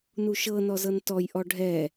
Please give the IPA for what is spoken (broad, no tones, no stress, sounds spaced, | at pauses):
n u ʃ ɤ n ɔ z ɤ n t ɔ j ʔ ɔ ɖʱ ɛ